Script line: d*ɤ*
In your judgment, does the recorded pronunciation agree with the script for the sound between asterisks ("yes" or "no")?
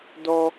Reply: no